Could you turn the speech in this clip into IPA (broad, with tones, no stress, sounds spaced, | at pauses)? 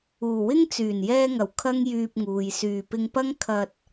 uː˨˩ w ɪ˥ ŋ t͡s yː˨˩ n j ɛː˧ ŋ ɐ˨˩ w kʰ ɐ˥ ŋ j yː˧ p̚ ŋ uː˨ j s yː˨˩ p ɪ˧ ŋ p ɐ˥ ŋ kʰ ɐ˧ t̚